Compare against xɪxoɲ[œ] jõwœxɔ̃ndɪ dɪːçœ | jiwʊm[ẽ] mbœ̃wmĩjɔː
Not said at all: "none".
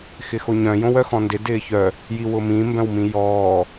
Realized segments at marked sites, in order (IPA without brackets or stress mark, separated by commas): œ̃, ĩ